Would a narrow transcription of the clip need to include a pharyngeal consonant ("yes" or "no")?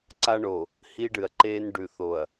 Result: no